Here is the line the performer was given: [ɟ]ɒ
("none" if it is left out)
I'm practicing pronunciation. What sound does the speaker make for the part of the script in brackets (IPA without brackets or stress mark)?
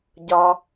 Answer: ɟ